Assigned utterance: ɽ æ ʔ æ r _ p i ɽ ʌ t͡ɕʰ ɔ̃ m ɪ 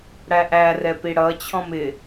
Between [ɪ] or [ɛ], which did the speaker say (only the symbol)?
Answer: ɛ